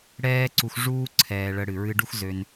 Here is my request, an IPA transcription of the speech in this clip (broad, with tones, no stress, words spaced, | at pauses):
ɽɛː˦ǀu˧x ʐuː˦ ǀʰɛː˨ɭə˨ ɽɨ˨ɹɨ˧ɖu˦xzø˧n